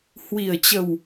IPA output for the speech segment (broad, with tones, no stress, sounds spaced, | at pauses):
h w i˨˩ ə̯ t͡ɕ ə˨˩ w